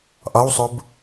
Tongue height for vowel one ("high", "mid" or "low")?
low